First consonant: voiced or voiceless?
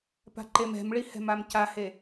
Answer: voiceless